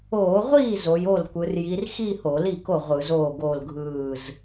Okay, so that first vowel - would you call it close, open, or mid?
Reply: mid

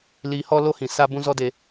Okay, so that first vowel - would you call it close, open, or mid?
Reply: close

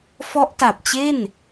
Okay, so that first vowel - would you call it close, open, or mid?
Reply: mid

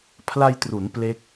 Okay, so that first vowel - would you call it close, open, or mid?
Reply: open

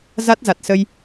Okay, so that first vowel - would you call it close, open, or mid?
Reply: open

